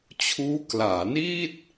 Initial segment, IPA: t͡ɕʰ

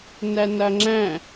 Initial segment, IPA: n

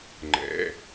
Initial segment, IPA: ŋ͡ǃ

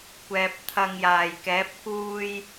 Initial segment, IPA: kʷ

